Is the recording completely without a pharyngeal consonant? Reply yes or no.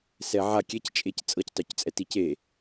no